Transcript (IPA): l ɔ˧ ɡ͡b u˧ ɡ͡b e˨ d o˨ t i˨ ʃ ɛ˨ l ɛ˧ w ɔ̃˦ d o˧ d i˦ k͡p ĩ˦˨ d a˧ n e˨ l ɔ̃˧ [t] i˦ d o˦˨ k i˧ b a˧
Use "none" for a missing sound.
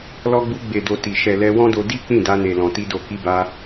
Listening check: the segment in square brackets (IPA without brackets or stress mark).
t